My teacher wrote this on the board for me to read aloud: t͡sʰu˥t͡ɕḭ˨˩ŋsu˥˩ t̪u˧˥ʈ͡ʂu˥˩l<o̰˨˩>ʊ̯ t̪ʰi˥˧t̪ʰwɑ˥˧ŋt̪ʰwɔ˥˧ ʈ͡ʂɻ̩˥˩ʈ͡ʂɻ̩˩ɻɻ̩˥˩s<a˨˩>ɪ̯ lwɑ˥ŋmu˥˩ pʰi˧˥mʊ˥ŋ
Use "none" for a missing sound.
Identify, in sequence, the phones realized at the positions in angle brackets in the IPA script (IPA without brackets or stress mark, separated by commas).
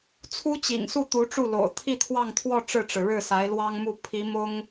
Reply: o̰˨˩, a˧˥